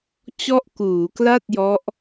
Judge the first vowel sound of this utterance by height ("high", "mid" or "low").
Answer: mid